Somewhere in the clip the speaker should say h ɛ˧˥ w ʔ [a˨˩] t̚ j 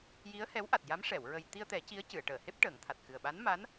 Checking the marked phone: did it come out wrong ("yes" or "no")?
no